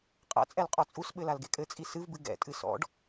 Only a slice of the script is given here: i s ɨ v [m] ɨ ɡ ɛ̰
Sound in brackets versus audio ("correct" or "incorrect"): incorrect